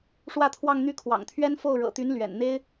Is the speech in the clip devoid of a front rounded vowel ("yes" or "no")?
no